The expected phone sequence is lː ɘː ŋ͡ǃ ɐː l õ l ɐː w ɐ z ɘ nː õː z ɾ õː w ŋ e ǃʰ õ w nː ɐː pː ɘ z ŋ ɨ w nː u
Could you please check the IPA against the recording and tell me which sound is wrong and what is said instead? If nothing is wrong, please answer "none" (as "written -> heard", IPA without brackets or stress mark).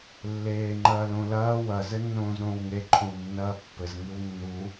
ɘː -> eː